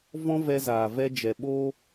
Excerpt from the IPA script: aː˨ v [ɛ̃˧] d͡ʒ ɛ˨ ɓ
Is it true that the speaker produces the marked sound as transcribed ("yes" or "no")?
no